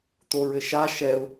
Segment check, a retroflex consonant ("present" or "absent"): absent